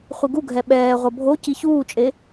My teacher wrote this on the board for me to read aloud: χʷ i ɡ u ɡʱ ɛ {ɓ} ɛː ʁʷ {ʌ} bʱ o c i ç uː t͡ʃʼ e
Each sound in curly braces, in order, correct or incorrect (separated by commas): correct, correct